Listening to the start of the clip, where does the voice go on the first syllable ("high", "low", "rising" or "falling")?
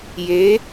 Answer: rising